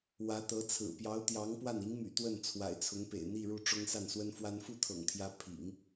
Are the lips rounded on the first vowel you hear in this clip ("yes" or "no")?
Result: no